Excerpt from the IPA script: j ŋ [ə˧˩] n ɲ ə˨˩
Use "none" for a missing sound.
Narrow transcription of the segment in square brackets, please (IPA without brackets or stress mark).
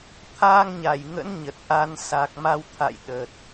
ə̰˧˥